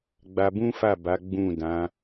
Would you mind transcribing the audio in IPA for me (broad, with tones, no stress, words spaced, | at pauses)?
ɡ͡ba˧bũ˦fa˦˨ba˨˦ ɡ͡bũ˦˨dã˨˦